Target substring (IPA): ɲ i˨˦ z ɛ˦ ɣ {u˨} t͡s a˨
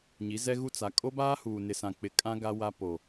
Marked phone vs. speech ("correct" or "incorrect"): incorrect